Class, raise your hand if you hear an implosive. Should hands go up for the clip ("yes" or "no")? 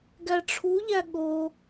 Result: yes